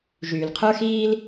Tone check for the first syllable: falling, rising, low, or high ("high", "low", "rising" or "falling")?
low